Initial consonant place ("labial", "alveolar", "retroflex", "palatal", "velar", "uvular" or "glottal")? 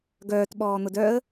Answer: velar